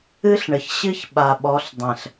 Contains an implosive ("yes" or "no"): yes